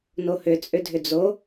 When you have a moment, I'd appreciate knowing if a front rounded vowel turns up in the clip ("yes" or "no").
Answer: yes